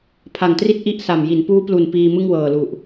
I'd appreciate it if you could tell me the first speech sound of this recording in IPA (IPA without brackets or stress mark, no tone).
pʰ